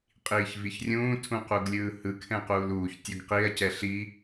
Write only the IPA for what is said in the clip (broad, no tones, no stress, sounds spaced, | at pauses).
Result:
qʼ iː ç v i ç rʲ ũː tʰ ũ q u ɡ lʲ ɯː h ɯ kʰ ɛ̃ q uː l uː ç tʲ o ɡ q i ɐ̯ c ɛ ɬ i